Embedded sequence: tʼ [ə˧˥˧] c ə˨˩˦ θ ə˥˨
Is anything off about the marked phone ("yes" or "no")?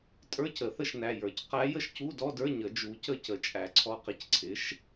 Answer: yes